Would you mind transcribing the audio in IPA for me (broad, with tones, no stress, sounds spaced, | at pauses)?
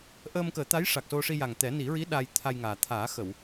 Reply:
ʔ əː˧ m k əː˨˩˦ t̪ a˧˥ j ʂ a˨˩ k̚ s o˧ ʂ i˧ j a˨˩ ŋ t̪ ɛ˨˩˦ n i˨˩˦ ɹ i˧˥ ɗ a˧ j t̪ʰ a˧ j ŋ aː˨˩ t̪ʰ aː˨˩˦ x ə˨˩˨ w